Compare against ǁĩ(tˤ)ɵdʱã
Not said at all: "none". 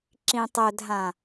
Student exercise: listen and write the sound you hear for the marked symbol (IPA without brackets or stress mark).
tˤ